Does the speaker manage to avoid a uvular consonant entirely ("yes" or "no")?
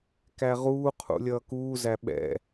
no